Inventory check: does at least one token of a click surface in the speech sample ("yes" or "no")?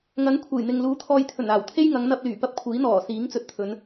no